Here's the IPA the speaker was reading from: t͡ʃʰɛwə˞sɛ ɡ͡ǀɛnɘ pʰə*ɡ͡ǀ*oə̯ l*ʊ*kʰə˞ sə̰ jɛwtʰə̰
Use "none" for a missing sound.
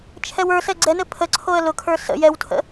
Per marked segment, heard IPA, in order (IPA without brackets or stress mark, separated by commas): ǀʰ, ʊ